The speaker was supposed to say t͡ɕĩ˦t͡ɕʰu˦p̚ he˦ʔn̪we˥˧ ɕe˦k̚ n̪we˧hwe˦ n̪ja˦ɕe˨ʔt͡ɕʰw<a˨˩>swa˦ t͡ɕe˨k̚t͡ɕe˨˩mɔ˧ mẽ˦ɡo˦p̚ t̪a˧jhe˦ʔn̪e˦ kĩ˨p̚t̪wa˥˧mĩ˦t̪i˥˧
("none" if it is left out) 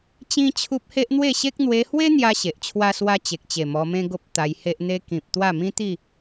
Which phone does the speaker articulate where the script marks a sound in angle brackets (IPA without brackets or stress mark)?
a˦